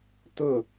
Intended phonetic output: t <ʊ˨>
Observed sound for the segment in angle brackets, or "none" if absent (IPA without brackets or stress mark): ʊ˦˨